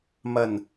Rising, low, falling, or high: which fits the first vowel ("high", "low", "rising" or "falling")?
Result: low